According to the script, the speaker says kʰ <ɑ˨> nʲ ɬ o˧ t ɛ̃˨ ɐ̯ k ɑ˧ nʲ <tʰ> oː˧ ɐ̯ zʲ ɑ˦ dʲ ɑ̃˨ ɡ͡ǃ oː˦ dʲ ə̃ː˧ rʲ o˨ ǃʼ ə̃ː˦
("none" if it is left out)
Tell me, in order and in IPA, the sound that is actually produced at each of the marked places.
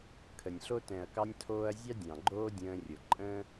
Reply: ə˨, tʰ

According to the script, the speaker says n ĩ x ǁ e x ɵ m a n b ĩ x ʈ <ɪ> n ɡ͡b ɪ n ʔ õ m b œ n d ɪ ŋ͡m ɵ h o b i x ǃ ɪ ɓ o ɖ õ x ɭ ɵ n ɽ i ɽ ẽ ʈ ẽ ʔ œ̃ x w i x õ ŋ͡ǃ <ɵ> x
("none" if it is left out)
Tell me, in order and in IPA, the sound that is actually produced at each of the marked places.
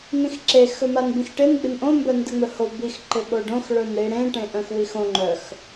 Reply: ɪ, œ

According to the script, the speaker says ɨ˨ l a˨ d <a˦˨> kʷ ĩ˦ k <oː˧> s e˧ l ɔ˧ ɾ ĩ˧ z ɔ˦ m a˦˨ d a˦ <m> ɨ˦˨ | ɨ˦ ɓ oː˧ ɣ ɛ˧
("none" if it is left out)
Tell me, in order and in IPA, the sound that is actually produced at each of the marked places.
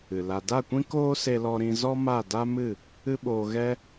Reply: a˦˨, oː˦, m

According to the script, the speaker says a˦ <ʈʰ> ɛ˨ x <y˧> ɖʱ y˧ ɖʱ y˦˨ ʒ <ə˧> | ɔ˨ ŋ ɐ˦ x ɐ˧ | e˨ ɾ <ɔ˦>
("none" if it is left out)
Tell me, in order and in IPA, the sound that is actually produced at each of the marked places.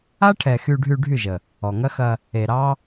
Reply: ʈʰ, y˧, ə˨, ɑ˦

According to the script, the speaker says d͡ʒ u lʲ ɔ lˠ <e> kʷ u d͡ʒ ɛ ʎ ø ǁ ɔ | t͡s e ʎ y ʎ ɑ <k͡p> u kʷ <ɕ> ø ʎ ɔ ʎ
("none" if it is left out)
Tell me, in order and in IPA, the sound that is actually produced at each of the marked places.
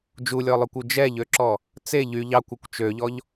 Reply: ø, kʷ, t͡ʃ

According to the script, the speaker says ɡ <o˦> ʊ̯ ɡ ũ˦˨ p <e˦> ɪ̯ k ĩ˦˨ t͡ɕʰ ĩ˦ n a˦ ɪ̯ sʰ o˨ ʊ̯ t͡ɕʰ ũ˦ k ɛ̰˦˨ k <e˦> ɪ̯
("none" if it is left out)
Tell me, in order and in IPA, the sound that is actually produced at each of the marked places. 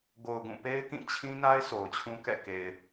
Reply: o˨, e˦, e˨

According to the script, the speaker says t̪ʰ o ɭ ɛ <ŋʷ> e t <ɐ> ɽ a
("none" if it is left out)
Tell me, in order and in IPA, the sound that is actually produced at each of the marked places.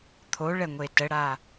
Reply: ŋʷ, ə

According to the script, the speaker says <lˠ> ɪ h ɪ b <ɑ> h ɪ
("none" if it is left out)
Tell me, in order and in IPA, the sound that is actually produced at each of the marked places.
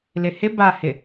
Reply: l, a

